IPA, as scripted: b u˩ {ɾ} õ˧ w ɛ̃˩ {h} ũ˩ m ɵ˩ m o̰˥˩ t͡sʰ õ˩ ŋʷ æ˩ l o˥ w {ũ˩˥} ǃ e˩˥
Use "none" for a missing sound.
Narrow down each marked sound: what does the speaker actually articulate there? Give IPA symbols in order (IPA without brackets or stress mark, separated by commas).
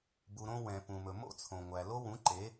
ɾ, p, ũ˩˥